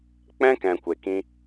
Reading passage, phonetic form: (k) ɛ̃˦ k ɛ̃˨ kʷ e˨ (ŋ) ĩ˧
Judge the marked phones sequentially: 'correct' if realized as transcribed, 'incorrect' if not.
incorrect: k͡p, incorrect: k

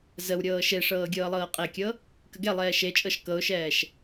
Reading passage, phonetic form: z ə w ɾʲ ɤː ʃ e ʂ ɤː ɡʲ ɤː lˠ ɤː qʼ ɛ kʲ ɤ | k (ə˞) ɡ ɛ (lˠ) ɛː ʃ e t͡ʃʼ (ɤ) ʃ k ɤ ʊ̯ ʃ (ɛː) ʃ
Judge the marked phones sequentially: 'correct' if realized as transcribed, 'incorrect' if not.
incorrect: ə, correct, correct, correct

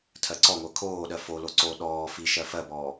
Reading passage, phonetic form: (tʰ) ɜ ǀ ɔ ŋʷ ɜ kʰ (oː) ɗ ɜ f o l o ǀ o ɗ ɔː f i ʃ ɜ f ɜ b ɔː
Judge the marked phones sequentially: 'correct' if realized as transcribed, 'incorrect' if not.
correct, correct

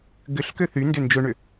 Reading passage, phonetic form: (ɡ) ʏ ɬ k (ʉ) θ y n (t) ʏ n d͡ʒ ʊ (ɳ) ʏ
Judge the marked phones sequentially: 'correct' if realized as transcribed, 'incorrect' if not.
correct, incorrect: ø, incorrect: d, correct

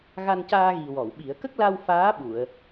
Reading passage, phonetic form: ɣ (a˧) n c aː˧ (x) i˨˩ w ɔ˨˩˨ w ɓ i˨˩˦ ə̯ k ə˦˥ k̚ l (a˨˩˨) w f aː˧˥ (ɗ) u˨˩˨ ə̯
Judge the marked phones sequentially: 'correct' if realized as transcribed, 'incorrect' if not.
correct, incorrect: ɣ, incorrect: a˧, incorrect: ɓ

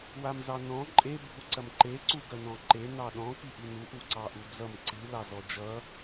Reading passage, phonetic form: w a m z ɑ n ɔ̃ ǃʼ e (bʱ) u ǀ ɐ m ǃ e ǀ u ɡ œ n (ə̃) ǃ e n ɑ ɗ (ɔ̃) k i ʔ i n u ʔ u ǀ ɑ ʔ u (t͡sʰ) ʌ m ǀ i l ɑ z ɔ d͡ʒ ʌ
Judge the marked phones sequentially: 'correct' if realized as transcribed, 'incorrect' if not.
correct, incorrect: ɔ̃, correct, incorrect: d͡z

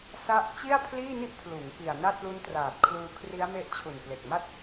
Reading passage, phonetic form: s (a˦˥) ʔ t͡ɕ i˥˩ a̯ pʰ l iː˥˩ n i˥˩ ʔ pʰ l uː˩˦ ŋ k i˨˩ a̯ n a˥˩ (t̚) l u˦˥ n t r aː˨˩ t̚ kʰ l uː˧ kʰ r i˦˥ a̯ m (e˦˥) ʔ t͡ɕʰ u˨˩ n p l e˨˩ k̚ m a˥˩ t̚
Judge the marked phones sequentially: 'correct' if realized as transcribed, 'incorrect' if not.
incorrect: a˥˩, correct, correct

